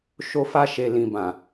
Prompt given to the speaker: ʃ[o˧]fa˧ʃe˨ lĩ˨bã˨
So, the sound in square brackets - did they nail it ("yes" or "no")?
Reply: yes